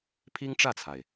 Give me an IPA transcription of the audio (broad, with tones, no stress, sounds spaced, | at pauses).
pʰ i˥ ŋ ʈ͡ʂ ä˥˩ t͡sʰ a˩ ɪ̯